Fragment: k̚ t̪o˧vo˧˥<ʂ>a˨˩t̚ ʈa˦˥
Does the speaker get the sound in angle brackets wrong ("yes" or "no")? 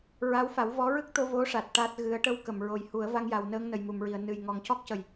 no